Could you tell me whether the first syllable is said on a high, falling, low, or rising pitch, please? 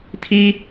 high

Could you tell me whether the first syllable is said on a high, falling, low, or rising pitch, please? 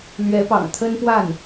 rising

